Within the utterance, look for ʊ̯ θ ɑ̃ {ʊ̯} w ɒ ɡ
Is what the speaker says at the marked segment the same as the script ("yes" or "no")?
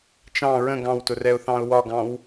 yes